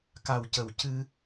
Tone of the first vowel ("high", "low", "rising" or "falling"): low